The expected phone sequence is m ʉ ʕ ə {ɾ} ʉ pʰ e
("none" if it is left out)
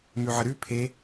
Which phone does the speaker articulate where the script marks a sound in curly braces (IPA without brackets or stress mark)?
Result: ɾ